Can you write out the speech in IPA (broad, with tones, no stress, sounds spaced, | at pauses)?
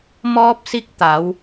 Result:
m ɔː˧ p̚ s i˧ k̚ t̪ a˩˧ w